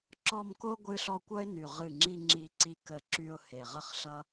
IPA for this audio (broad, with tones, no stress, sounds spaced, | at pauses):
ǁ ɔ˥˧ m k o˥ ɡʷ ɨ˥ ɬ ɔ˥ kʷ ʌ˥ ɪ̯ n y˧˩ ʁ ɨ˧˩ ŋ͡ǁ i˧ ŋ͡ǁ i˧ ǀ i˧ k ə˧˩ ǁ y˧ ʊ̯ h e˧˩ ʁ ə˥ χ ɬ ʌ˥